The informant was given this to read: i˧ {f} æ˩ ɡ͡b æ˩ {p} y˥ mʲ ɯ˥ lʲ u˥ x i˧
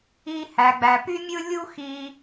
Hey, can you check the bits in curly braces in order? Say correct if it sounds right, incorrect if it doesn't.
incorrect: h, correct

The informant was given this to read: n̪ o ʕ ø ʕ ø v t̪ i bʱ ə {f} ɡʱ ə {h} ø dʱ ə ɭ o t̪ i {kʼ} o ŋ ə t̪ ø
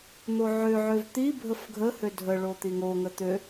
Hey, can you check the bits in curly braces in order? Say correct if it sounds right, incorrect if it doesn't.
correct, correct, incorrect: ŋ

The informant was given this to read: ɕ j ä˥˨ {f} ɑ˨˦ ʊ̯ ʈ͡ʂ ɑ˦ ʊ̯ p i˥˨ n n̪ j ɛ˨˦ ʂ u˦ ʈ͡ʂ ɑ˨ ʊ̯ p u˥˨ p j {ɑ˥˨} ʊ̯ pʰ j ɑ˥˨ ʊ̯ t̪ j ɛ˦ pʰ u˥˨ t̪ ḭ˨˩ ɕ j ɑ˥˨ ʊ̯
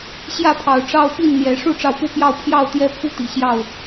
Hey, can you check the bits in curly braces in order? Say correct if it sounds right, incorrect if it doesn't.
incorrect: pʰ, correct

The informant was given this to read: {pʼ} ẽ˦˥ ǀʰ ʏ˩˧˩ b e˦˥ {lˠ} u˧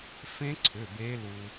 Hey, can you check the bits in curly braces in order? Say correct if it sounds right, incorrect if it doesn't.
incorrect: f, incorrect: l

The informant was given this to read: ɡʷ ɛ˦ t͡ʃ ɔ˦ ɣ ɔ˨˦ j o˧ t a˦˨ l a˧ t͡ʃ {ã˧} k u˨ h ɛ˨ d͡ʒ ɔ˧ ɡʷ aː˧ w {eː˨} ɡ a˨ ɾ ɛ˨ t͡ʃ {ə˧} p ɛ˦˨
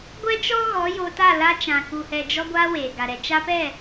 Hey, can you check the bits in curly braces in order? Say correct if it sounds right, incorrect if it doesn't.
incorrect: ã˨, correct, incorrect: a˧

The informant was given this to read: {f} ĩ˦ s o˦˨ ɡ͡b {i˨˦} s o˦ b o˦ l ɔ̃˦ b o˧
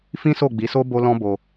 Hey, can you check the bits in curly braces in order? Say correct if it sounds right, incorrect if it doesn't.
correct, correct

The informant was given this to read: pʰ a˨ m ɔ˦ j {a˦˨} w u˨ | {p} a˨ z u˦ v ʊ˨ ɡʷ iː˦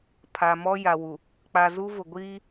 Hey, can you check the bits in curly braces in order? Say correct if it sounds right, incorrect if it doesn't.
incorrect: a˨, incorrect: k͡p

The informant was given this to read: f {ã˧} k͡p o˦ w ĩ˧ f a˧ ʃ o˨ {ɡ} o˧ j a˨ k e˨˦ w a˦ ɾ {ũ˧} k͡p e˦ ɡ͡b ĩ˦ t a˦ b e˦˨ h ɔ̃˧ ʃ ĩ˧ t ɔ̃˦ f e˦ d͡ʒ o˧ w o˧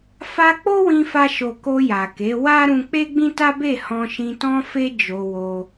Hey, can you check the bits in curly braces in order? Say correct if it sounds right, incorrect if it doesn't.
incorrect: a˧, incorrect: k, correct

